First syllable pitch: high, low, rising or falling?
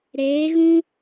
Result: rising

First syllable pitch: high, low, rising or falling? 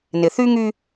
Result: low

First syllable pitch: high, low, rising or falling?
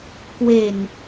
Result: low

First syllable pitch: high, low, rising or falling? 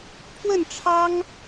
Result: falling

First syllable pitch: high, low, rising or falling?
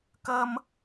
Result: high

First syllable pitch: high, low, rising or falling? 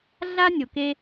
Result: high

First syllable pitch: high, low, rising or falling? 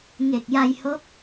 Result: low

